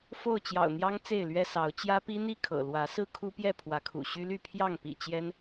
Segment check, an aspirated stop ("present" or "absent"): present